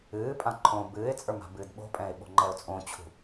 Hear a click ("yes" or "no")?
yes